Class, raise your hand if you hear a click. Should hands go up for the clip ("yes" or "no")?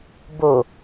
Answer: no